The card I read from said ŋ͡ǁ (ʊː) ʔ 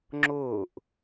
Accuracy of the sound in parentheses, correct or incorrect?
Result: correct